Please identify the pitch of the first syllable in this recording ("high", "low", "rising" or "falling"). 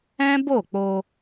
high